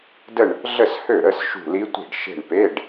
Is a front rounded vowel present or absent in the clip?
present